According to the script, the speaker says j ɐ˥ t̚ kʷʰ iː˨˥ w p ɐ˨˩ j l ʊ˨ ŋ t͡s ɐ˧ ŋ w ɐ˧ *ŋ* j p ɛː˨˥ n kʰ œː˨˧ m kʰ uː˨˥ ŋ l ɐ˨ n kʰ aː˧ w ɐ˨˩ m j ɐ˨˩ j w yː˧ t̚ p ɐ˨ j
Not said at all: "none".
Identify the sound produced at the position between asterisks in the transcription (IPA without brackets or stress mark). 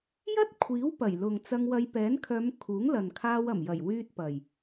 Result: none